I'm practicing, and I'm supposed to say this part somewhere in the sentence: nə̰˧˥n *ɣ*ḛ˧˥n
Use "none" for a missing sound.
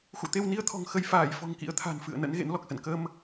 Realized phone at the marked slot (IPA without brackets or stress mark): ɣ